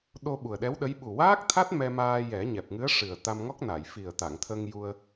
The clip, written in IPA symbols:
ɗ o˧ ɓ u˨˩ ə̯ ɗ ɛ˧˥ w ɗ ə˧˥ j ɓ u˨˩ w aː˦˥ k̚ t̪ʰ a˦˥ t̚ m ɛ˧ m aː˧ j ɛ˨˩˦ ɲ ɛ˨˩ p̚ ŋ ɨ˧˥ ə̯ ʂ ɨ˨˩ ə̯ t̪ a˧ m ŋ ɔ˦˥ k̚ n a˨˩˨ j f i˨˩ ə̯ t̪ a˨˩˨ ŋ t̪ʰ ə˧ ŋ j u˧ ə̯

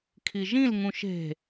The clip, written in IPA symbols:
kʰ i ʒ ĩ l ŋ ũ ʃ e̤

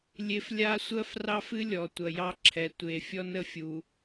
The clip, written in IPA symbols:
lʲ e˦ f lʲ a˦ sʷ ɜ˦ f r ɑ˦ f ɨ˦ lʲ ɔ˨ tʷ ɐ˨ j ɑ˦ ǁʰ ɛ˨ tʷ e˨ fʲ ɔ˦ n ə˦ fʲ u˨

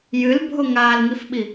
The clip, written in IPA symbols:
j ɨ l bʱ o ŋ a l ŋ i f ɓ i

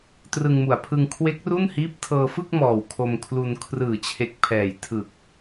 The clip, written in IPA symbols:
t r ɯ˧ ŋ m u˨˩ a̯ pʰ ɯ˧ ŋ kʰ w e˦˥ k̚ r u˥˩ n h iː˦˥ p̚ tʰ ɤː˧ f ɯ˥˩ k̚ m ɔː˨˩ w kʰ o˧ m kʰ l u˧ n kʰ r ɯː˨˩ t͡ɕʰ e˨˩ k̚ pʰ ɛː˨˩ j tʰ ɯ˨˩ k̚

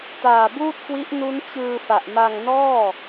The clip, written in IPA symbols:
t aː˨˩ b uː˥˩ t̚ k w i˦˥ ʔ n u˦˥ n t͡ɕ ɯː˧ f a˨˩ ʔ m a˧ ŋ n ɔː˥˩

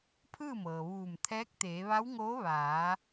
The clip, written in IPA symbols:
pʰ ɯː˥˨ m ɤː˩ ʋ uː˧˩ m t̪ʰ ɛː˧˥ k̚ t̪ eː˩˧ ʋ a˧˥ w ŋ oː˧˥ ʋ aː˩˧

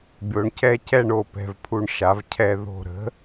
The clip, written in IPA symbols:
bʲ o˩˥ ɳ c ɛ˥˨ c ɛ˥˨ ɳ o˩˧˩ p ɛ̤˧˩ v pʰ u˧˩ ɳ ʃ a˩˧ v cʰ ɛ˧˩ ð o̤˧˩ ɾ ə̤˩˥

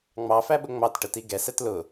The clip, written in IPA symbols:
ŋ͡m ɑ f æ ɓ ʊ ŋ͡m ɑ t ʈ ə t i ɡ ɛ s ɛ t l ʊ

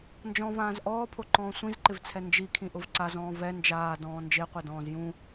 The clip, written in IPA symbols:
n d͡ʒ ɔ̃ v ãː z ʔ ɔː pʰ o ǃ ɔ̃ː sʷ ĩ z ǃ ɪ v t͡sʰ ɛ n d͡ʒ i kʰ ĩ ʔ ʊ v ǀ a z ɔ̃ː v ɛ n d͡ʒ aː d ɔ̃ː n d͡ʒ e qʷ ɛ d ɔ̃ː z j ũ

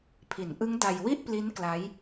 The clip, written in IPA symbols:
pʰ i˩˦ n ʔ ɯ˦˥ ŋ d a˧ j w i˥˩ ʔ p l i˦˥ n k l a˦˥ j

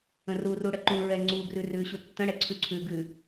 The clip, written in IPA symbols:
ə̃ r u r u ɽ ə ǃ ũ ɹ ɛ ŋ͡ǀ u ɡ r ʉ r ʉ ɕ u tː ə̃ ɽ ɛ ǀʰ ʉ ǀʰ ʉ ɡ ʉ

